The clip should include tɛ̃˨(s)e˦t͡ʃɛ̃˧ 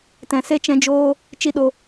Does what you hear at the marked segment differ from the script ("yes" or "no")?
no